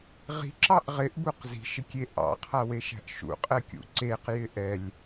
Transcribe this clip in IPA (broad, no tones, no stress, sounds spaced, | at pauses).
ʁ i̤ ǁ ɑ ʔ ʁ ɪ ʔ b u q z i̤ ʃ ɪ kʲ e ʔ ɑ̰ qʰ a w e ʃ æ̤ ʔ ʃ ṵ qʼ ɛ kʲ ṵ ǀ e q j ɪ ʔ ɛ lʲ